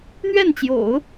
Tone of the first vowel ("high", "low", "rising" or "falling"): falling